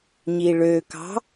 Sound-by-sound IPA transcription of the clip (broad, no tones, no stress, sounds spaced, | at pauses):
ɲ i ɭ ø k ɑ̤